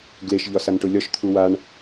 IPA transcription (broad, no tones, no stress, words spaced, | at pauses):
ɡleʃʎɒ sanʈʊlʲɒʃt̪ʰu waɳ